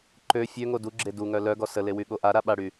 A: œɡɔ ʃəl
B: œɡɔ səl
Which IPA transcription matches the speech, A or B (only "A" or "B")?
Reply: B